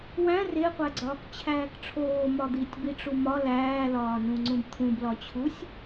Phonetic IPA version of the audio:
w æ̃ r e qʷ æ ɡ͡ǀ ɒː k t͡ɕʰ æː k ʈ͡ʂʰ oː m ɒ d̪ i tʲ b i ʈ͡ʂ u m ɒ l æː l ɒː n ũ ŋ͡ǀ ũ b t̪ʰ ũ b l ɒ t͡ɕʰ u sʲ

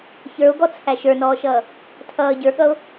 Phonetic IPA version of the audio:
ç ə˞ o̯ ɡ ɔ t͡sʰ æ ʃ ə˞ n ɔː ʃ ʌː | tʰ ʌː ɟ ə˞ ɠ ʌ o̯

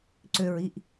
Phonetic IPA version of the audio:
ǀ ø ɹ i ʔ

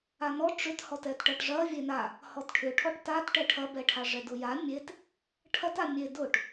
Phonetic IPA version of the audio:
a n ɔ ʈ͡ʂ ʏ t h ɔ t ɛ t ʈ ɐ ʈ ʐ ɐ vʲ e n a | h ɔ t ʈʰ ʏ ʈʰ ɔ ʈ t a t ʈ ɛ ʈʰ ɐ b ɛ ʈʰ a ʐ ɛ d ʊ j a mʲ e t | ʈʰ ɐ t a mʲ e d ʊ ʈ

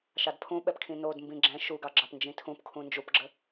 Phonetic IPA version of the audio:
ʃ ɑ d pʰ ũ ɓ ɛ p kʰ ĩ n o d m b ĩ ɡ͡ǁ ɛ̃ ʃ u ɡ ɑ ɡ͡ǁ ɑ p n d͡ʒ ĩ tʰ ũ p kʰ ũ n d͡ʒ u p ɡ͡ǁ ə

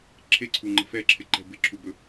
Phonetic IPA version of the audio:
ǁʰ e ǀʰ u ŋ͡ǃ ə̤ f ɛ ǁʰ ɪ ǃ ɛ̤ b ɪ ǁʰ u b ɵ

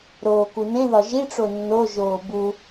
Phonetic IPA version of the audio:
ɾ oː k u n ẽ ð ɒ ʒ i ʈ͡ʂ o nː o ʒ oː b u

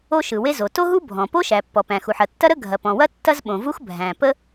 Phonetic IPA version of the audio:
o˥ ʃ ɯ˩ w e˥ z o˩ t o˥ ɦ u˥ bʱ ɔ̃˩ p o˥ ʃ æ˩ pː ɔ˩ p æ̃˩ x u˩ ħ ɐ˩ tː ɐ˥ ɾ ə˥ ɡʱ ɐ˩ p ɔ̃˩ w ɐ˥ tː ɐ˥ z ɓ õ˩ v u˥ x bʱ æ̃˩ p ə˥

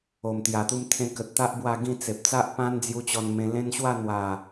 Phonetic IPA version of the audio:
o˨˩ m t̪ j a˨˩ t̪ u˧ m t̪ʰ ẽ˧ k ə˨ t̚ t̪ a˦ ʔ b w a˥˧ ɡ ĩ˥˧ t͡s e˨ p̚ t͡s a˦ ʔ p ã˦ n d͡z j u˧ t͡ɕ ɔ˧ n m ẽ˧ l ẽ˦ n ɕ w a˥˧ n̪ w a˨˩

